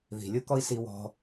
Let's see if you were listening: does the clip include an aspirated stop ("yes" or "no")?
no